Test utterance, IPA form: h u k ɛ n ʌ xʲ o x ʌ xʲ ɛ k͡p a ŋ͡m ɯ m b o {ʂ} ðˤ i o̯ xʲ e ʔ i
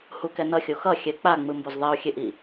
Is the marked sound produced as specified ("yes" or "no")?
no